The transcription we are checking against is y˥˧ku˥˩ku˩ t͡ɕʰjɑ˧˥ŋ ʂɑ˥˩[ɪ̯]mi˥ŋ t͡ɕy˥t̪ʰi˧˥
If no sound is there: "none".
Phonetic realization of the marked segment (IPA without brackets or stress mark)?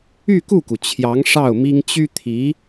ʊ̯